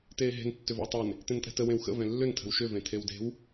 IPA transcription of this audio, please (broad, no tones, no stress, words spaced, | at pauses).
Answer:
teːɦe̤n tːʏvə̰wtˤen | tẽntʼɛ̤tə wẽwxə̰ vɛ̃lːʏn tʰə̤wʃʏ vẽtʰewde̤w